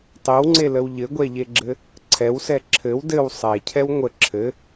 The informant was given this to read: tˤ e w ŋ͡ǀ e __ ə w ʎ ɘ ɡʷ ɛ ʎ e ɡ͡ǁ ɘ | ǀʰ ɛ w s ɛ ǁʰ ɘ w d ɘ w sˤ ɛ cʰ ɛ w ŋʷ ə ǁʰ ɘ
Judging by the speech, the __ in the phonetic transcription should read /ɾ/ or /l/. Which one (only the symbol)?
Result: l